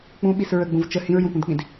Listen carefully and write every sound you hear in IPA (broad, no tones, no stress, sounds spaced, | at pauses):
k͡p ũ ɓ i s ɹ ə ɡ͡b ũ v t͡ʃ ə h ĩ ɹ j ũ p ũ d k͡p ĩ d